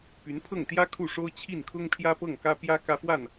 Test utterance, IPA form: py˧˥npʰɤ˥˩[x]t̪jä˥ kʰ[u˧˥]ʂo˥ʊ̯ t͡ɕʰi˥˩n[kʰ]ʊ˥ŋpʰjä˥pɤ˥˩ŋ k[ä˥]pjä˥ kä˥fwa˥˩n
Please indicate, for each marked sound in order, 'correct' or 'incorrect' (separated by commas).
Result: incorrect, incorrect, correct, correct